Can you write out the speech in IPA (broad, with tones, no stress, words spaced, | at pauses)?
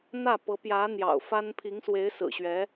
n̪ä˥˩ pɤ˧˥pjä˧˥ n̪jɑ̰˨˩ʊ̯fa˥n pʰi˧˥ŋswe˧˥ɪ̯ sɹ̩˨˩ɕɥɛ˧˥